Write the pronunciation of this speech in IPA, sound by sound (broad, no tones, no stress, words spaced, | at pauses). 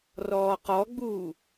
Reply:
rɔːqɔɡ͡buː